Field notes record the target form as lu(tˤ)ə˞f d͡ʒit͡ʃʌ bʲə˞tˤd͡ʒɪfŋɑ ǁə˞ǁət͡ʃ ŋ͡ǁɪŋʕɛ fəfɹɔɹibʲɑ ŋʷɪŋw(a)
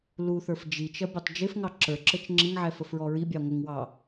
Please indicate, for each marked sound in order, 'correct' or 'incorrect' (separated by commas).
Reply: incorrect, incorrect